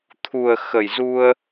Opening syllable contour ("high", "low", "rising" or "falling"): low